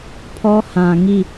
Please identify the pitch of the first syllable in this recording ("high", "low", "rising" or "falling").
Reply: high